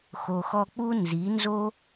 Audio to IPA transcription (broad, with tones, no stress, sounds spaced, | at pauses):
x o˨ x ɔ˧ k͡p u˦ n z i˨˦ n z o˦